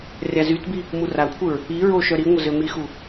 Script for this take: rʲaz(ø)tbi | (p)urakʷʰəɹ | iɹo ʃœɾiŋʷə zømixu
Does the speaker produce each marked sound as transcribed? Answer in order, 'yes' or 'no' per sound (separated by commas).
no, no